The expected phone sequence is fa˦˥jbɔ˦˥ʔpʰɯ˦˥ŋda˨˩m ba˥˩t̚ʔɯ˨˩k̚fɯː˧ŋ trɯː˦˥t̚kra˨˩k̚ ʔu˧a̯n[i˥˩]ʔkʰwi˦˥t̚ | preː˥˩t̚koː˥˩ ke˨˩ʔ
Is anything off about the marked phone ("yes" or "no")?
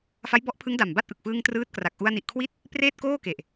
yes